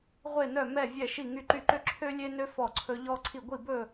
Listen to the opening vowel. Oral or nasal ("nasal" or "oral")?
oral